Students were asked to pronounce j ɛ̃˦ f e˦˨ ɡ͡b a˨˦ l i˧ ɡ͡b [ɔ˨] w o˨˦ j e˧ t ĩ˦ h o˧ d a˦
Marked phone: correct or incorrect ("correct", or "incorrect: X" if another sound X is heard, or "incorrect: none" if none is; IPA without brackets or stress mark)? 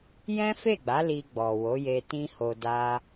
correct